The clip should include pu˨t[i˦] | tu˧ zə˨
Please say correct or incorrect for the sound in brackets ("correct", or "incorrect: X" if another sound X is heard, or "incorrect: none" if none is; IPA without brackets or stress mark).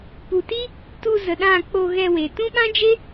correct